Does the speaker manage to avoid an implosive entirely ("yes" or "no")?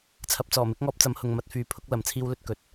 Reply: yes